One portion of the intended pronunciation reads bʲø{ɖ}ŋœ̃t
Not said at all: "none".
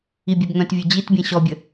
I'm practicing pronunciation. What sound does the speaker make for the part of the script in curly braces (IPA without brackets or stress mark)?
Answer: b